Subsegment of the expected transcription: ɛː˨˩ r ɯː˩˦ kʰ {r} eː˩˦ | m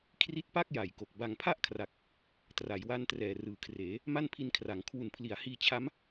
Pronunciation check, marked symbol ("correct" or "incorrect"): correct